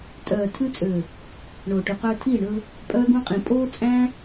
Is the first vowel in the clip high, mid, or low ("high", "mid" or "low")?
mid